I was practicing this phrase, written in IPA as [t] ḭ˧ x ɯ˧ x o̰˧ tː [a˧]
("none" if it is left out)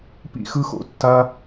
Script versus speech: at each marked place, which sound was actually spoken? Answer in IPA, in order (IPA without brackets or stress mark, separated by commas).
p, a˧